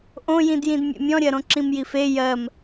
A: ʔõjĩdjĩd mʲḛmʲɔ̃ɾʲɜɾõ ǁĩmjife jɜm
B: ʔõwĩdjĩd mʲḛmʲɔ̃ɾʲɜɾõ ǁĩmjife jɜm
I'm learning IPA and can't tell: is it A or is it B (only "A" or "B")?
A